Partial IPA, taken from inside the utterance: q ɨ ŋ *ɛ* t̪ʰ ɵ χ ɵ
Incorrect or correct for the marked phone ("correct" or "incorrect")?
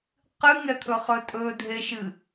correct